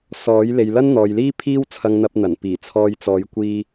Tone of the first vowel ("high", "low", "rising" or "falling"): rising